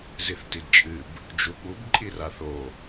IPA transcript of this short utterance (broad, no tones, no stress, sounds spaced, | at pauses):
z i θ t i d t͡ʃʼ ɨ b | d͡ʒ u ɓ u b ǃʼ i r a θ o